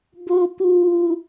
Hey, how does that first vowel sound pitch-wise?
low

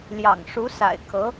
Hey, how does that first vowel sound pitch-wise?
low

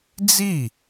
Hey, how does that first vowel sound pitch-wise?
falling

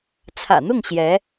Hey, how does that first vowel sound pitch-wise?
low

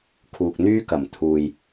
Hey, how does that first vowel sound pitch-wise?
low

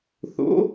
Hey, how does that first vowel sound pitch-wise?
rising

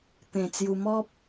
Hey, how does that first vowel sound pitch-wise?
low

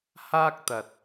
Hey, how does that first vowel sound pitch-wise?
high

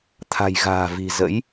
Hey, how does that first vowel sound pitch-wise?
low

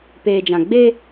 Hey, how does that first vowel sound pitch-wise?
low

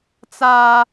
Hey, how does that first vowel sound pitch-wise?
high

